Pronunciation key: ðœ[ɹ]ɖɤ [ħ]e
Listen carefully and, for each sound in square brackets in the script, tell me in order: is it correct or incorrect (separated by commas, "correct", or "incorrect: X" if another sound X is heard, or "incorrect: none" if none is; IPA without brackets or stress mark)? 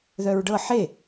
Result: correct, correct